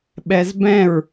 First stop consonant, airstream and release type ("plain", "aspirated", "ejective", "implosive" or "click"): implosive